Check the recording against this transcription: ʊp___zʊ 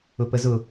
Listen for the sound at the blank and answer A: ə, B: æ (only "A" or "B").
A